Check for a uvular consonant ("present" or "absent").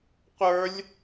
present